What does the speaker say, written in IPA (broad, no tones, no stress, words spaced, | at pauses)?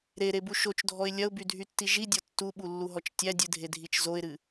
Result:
ɾeɾebu ʃot͡ʃdʱɔɪ̯ lʲɐʊ̯bydʱytːi ʒidʲɔ tːuɓulːuɦɔt͡ʃ tʲædʲɨdʱedʱit͡ʃ zoɪ̯ɾɨ